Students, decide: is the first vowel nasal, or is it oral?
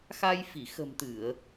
oral